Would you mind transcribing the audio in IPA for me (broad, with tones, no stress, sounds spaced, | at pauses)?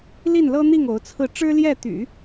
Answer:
l i˥˩ n l ɤ˥ n̪ i˥˩ ŋ o˧˥ ʊ̯ t͡sʰ ɹ̩˥˩ ʈ͡ʂ ɻ̩˥ l j ɛ˥˩ t̪ y̰˨˩˦